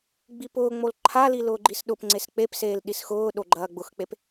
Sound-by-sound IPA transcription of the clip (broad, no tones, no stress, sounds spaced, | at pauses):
ɡ͡b i p ʊː ŋ͡m o l ǃʰ a l i l ʊː ɡ͡ǃ i s ɗ ʊ p ŋ͡ǀ e s k͡p e p s eː l ɗ i s x ʊː ɗ o ɡ͡ǃ ɐː ɡ͡b ʊ x k͡p e p